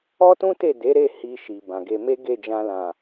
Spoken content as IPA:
ɔ˦ t ũ˦ t e˦˨ d e˨˦ ɾ e˦˨ h i˧ ʃ i˨ b ã˨ ɡ e˧ m e˦ ɡ e˦˨ d͡ʒ ã˧ l ã˨

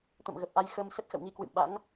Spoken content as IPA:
t̪ ə̰˧˨ m ɣ ə˨˩ p̚ ʔ a˧ j x ə˧ m s ə˦˥ t̚ x ə̰˧˨ w ŋ i˧ k w ɨ̰˧˨ m ɓ a̰˧˥ ŋ

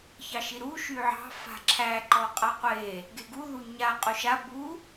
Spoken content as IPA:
ç ɑ ʃ i ɾ u ʃ y ʕ ɑ̤ f a̤ ǁʰ æ ǃ ɔ qʼ a qʷ e | ɡ e ɡ u ð u ɲ a qʼ u ʃ a b u

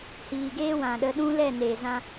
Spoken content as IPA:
h iː˨ ɡ eː˦ w ã˨ ɗ ə˧ ɗ ũ˦ l ɛ˦˨ n eː˨ z ã˦

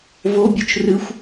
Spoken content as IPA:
v o bʲ u t͡ʃ r ɨ xʷ

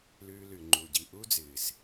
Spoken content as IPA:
l ʉː˧ l ʉ˨ ŋ͡ǃ u˨ ɟ i˨ ʔ u˦ d͡z ɨː˨ s

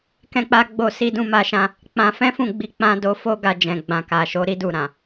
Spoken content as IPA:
k ɛ̃˦ k͡p a˦ ɡ͡b o˦˨ s i˧ d ũ˧ m a˧ ʃ ã˧ | k͡p ã˧ f ɛ̃˦ f ũ˦˨ ɡ͡b i˧ k͡p ã˧ d o˧ f o˦ ɡ a˧ d͡ʒ ɛ̃˨ ɡ͡b ã˨ k a˨ ʃ o˨˦ ɾ i˦ d u˦˨ ɾ ã˨

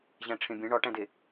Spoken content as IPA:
ʑ æ̃ ʈ͡ʂʰ ẽ bʲ ẽ ɳ ɒ ʈ æ̃ d e

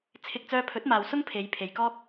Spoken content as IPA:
t͡sʰ ɪ˧ k̚ t͡s œː˧ pʰ ɵ˨˥ t̚ m aː˨ w s ʊ˥ ŋ pʰ e˨˧ j pʰ e˨ j k ɔː˥ k̚

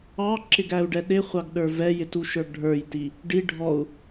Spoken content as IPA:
ɑ ǁ ɪ ɡ æ u̯ ɖ ɛ ɗ ɪ χʷ ɑ ɡ ɗ ə˞ v ɛ j ɪ t u ʃ ə˞ ɡ ɖʱ ə˞ j t i | ɖ i ɖʱ ɔ u̯

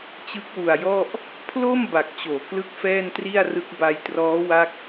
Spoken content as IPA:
t͡ɕ ɯ˦˥ k̚ w u˨˩ a̯ j ɔ˥˩ ʔ | pʰ l o˥˩ m b a˨˩ k̚ t͡ɕ oː˩˦ k l ɯ˥˩ k̚ f ɛː˥˩ n t r i˥˩ a̯ r ɯ˦˥ k̚ b a˧ j t r ɔː˦˥ w a˥˩ k̚

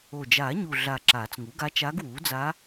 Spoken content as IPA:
o˨˩ d͡ʒ aː˨˩˦ ɲ u˨˩ ɮ a˨˩ ǁ aː˨˩˦ t͡s ŋ u˩˥ ɡ a˧˥ t͡ʃ aː˧˥ ɡ w uː˩˥ d͡z a˧˥

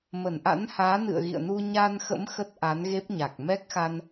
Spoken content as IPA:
m ə˧˩ n ʔ a̰˧˥ n h aː˨˦ n ɨ̰˧˨ ə̯ ɣ ḭ˧˨ ə̯ n u˧ ɲ a˧ n x ə̰˧˥ m x ə˦˥ t̚ ʔ a˨˦ n ɣ e˦˥ p̚ ɲ a˨˩ k̚ m ɛ˦˥ k̚ x a˧ n

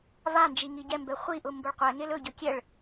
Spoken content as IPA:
v a n d͡ʒ i ŋ i ɟ ɛ m b ɛ χʷ i ʔ ʊ m b ʊ ɭ qʷ ɛ ŋ e l ɵ ɟ ɵ kʲ ɛ ɭ

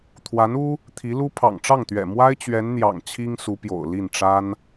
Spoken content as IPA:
t̪ʰ w a˧˥ n u˥ | t̪ʰ i˧˥ l u˥ pʰ ɑ̰˨˩ ŋ ʈ͡ʂ ɑ˥˩ ŋ t̪ ɥ ɛ̰˨˩ m w a˥ ɪ̯ t͡ɕ ɥ ɛ˧˥ n n̪ j ɑ̰˨˩ ŋ t͡ɕʰ i˥ ŋ s u˧˥ p j o̰˨˩ ʊ̯ l i˥˩ n ʈ͡ʂ a˥ n

